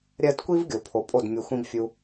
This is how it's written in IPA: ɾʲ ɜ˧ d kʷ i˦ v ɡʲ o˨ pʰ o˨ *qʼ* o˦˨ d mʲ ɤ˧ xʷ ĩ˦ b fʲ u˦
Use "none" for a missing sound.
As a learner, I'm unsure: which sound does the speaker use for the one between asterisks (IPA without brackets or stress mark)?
pʼ